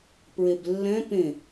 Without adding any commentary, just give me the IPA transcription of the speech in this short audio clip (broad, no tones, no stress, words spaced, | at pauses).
pɹeblːɛ̃ pẽ